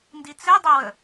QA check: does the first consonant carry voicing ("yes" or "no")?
yes